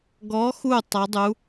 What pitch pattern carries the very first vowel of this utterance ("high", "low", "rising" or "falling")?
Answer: rising